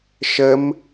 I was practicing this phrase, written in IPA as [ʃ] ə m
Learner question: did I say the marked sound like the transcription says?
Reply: yes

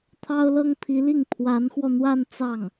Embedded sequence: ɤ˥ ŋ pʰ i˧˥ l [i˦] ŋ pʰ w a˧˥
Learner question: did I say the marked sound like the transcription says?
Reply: no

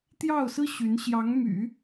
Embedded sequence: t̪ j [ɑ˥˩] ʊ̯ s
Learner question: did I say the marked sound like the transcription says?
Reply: yes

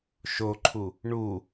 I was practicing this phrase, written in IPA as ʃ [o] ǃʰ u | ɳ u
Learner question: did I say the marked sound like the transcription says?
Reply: yes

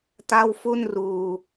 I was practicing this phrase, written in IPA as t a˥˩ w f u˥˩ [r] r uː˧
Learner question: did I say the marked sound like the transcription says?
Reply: no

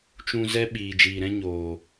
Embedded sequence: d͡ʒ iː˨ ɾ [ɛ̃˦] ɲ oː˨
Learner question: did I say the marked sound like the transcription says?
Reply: yes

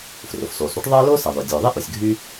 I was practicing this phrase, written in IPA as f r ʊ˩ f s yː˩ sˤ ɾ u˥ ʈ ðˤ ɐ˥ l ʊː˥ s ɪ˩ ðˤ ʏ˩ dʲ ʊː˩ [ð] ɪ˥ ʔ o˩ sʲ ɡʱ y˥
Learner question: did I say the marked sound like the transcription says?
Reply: no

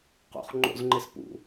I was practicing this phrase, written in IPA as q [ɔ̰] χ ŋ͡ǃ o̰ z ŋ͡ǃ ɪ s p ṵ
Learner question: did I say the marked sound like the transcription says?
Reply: no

